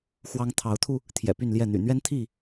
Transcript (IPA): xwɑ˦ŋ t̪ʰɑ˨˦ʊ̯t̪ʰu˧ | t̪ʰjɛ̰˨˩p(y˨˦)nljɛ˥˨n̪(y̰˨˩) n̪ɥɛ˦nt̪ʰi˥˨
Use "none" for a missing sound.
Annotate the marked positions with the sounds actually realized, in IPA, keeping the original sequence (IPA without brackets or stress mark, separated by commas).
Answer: y˥˨, y̰˨˩